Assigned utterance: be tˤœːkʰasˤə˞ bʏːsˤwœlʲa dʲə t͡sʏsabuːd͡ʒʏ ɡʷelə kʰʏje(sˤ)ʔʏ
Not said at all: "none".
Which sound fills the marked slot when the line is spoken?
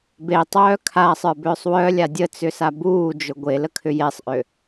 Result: sˤ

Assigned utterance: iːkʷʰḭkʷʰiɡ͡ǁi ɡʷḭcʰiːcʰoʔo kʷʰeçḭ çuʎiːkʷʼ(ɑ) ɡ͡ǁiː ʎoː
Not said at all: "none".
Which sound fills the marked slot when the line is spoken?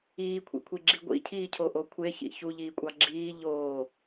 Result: ɑ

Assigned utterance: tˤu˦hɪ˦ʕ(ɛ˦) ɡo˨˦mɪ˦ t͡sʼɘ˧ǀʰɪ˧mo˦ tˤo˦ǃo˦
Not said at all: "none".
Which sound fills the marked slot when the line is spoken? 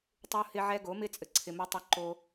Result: ɛ˦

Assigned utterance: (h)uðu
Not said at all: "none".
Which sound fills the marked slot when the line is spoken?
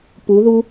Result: p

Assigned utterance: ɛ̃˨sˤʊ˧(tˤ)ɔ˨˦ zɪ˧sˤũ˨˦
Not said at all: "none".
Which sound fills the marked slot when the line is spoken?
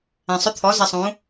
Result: t̪ʰ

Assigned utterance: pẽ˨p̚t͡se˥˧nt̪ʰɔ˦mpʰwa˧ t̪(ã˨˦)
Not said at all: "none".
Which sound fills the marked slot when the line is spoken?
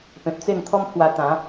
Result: ã˨˦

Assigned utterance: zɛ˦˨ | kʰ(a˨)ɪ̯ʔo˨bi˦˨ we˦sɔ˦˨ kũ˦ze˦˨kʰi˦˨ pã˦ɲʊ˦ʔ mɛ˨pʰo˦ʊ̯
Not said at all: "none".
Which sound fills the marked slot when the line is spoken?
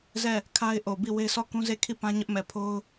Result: a˦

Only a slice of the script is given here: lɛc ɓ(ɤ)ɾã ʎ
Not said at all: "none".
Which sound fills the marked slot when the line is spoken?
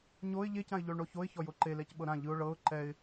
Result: ɤ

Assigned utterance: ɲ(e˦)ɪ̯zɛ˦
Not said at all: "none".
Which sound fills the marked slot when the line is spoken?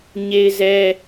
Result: e˦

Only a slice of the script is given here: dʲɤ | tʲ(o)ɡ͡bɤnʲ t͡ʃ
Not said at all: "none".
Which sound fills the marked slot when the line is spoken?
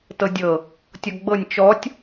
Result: ɔ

